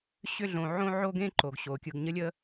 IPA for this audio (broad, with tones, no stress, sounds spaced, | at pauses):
ɕ ʏ˦ ɮ õ˨ ʕ õ˥ ʕ o˥ ɡ ẽ˥ ǃ o˩ ɡ ɕ o˩ kʲ ɯ˨ ɡ ɲ ə˦ lʲ ə˦